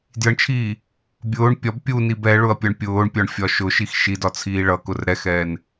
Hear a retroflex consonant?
yes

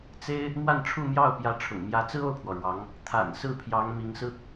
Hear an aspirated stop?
yes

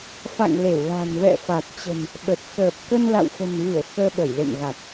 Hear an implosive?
yes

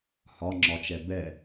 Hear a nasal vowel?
no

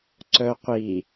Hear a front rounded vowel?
yes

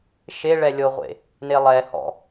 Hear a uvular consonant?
yes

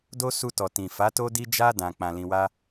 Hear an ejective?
no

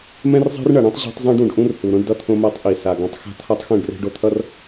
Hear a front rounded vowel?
no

